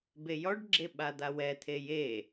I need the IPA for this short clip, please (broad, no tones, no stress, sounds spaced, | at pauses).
b e j ɔ ɖ ɡ͡ǁ e ɓ a d̪ a w ɛ t̪ʰ e j e